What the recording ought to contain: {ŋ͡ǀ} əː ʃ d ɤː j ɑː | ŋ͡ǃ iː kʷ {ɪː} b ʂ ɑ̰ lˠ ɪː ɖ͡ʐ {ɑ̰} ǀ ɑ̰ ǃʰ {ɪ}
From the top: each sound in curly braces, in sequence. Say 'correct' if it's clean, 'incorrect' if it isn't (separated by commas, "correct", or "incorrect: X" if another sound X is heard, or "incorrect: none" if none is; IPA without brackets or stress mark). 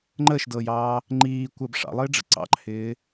incorrect: ŋ͡ǃ, incorrect: əː, incorrect: ə̰, incorrect: ɪː